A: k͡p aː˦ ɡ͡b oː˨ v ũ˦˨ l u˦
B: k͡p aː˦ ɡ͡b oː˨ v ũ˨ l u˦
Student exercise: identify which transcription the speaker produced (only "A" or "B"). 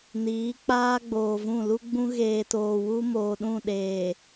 A